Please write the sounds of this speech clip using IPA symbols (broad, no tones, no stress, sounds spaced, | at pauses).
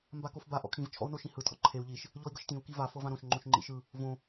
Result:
m b a k o f b a ʔ ɔ̰ kʰ ĩ v t͡ʃʰ ɔ̰ u̯ n o ʃ ĩ h ɯ tʰ ɔ̰ ǃʰ e u̯ ʎ i ʃ | ʎ ɔ i̯ ɡ ɤ ʃ t ĩ u̯ k i v a f ɤ v ã ɾ õ ʃ ŋ͡ǃ õ ʃ ŋ͡ǃ ḭ ʃ ɯ | v õ